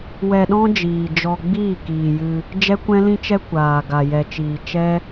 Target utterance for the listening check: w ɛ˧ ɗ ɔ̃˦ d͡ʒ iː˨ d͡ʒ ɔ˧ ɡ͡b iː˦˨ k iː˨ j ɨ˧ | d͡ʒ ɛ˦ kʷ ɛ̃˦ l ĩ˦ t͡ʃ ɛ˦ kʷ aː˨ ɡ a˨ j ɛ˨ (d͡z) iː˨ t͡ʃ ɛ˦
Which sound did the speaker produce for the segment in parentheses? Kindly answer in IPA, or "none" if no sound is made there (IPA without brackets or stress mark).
t͡ʃ